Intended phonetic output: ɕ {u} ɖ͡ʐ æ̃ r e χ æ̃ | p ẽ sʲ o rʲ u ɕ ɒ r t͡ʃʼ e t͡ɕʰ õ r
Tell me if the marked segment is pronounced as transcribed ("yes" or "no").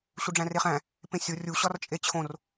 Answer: yes